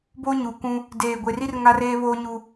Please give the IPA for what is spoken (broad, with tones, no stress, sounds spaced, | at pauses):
b oː˦ ɲ uː˨ k ũ˦ | d eː˨ ɡʷ e˨ r i˦ r ŋ a˦ r eː˦ β oː˦ ɲ u˦